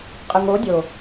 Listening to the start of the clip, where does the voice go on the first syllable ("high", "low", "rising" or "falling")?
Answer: low